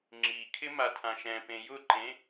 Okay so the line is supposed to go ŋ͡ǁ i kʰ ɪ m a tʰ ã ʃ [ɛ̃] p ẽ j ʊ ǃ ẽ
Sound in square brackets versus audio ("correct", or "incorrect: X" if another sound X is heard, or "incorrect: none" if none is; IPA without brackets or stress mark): correct